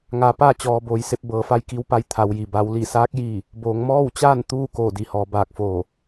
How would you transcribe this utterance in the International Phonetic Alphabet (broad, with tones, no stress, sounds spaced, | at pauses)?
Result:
ŋ aː˩˧ p aː˥˨ t͡ɕ ɔː˩ b oː˩˧ j s e˧ p̚ b ɤː˩˧ f a˧ j k i˧˥ w p a˧˥ j t̪ʰ a˩˧ w j i˩ b a˩˧ w l i˧˩ s aː˧˥ k̚ j i˥˨ | b oː˩˧ ŋ m ɔː˥˨ w t͡ɕ aː˥˨ n t̪ uː˥˨ k oː˧˩ d i˩˧ h ɔː˩˧ b aː˧˩ k̚ f oː˧˩